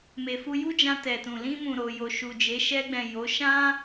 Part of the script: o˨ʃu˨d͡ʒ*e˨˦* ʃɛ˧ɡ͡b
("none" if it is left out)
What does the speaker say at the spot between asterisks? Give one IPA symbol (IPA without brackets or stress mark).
e˨˦